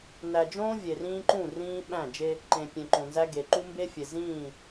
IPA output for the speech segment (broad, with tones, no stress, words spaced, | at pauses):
næ˨d͡ʒõː˦ vʲe˨rĩː˦ǃũ˦˨ rĩː˦ ɓæ̃˦˨d͡ʒe˦ | ǃẽ˨ pʲẽ˨ǃõ˨nzæ˦ ɡe˨ǃu˦ mbe˦fʲe˨zĩː˦˨